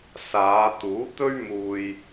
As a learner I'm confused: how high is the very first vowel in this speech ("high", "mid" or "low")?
low